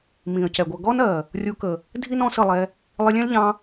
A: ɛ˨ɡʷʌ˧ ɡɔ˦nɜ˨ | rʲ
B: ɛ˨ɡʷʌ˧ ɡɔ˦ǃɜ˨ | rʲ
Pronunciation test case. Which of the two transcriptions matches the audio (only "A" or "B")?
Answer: A